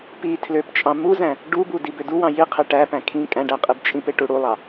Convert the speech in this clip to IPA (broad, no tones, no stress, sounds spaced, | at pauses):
p i tʰ l ø p t͡ʃʼ ɑ̃ m u z æ̃ | ɖ u b u d i b ø d u w ɑ̃ j i qʰ e ʈ æ p æ̃ kʰ ĩ kʼ æ̃ ɖ æ qʼ i b t͡ʃʼ ĩ p e ʈ u ɽ u lˠ ɑ